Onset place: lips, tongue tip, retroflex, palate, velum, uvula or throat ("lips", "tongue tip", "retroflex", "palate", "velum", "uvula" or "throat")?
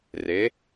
tongue tip